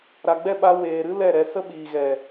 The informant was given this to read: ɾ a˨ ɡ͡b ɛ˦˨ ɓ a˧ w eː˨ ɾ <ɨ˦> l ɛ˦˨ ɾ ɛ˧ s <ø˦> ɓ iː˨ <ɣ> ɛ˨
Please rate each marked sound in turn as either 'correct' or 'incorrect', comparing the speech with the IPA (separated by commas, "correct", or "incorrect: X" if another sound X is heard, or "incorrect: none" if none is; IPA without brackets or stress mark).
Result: correct, incorrect: ə˦, correct